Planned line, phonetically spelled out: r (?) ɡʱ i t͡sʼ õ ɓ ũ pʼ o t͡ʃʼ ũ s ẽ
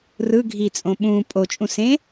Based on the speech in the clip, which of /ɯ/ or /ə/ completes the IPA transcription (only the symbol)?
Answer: ɯ